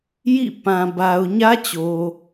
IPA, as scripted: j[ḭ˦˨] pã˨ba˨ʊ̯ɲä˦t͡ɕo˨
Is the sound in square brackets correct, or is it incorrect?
correct